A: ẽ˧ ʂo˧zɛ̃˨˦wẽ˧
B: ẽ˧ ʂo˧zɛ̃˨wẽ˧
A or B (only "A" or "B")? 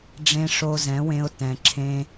A